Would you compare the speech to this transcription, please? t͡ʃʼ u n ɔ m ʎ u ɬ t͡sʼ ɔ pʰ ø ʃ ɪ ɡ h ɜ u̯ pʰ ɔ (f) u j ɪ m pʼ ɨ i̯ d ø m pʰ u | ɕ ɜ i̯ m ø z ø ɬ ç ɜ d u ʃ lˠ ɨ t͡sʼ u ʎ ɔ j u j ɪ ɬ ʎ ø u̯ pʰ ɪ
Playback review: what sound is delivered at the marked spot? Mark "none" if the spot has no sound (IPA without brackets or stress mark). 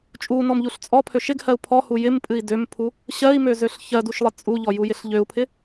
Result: h